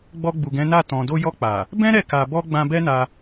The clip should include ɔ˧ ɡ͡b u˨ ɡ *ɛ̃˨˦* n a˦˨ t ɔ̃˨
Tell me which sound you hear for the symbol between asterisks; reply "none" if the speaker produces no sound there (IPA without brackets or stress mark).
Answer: ɛ̃˨˦